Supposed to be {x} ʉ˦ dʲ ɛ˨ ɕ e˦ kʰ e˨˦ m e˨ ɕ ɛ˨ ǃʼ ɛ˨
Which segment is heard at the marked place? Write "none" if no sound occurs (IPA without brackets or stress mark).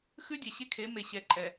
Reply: x